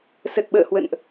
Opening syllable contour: low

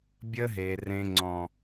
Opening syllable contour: high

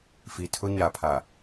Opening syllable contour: low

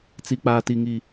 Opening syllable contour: low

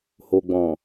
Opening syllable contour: low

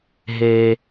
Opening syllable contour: low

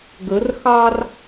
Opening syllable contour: rising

